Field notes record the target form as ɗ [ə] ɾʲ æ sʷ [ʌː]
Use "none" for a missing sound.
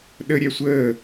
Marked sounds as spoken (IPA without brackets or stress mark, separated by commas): ə, əː